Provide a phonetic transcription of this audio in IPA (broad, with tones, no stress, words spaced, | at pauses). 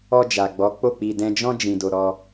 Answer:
ɔ˧d͡ʒa˨ ɡ͡bɔ˨˦k͡po˦˨k͡pi˧ dɛ̃˧d͡ʒɔ̃˦ d͡ʒĩ˧do˧ ɾɔ˧